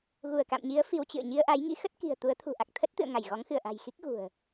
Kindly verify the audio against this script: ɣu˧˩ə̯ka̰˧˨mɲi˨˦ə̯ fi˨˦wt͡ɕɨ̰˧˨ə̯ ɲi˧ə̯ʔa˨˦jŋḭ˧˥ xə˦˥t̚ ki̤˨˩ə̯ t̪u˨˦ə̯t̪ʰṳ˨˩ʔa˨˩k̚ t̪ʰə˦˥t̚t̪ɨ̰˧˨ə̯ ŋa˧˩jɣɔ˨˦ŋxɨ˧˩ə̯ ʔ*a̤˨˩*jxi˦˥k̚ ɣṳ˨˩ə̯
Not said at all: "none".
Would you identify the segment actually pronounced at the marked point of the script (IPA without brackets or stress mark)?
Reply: a̤˨˩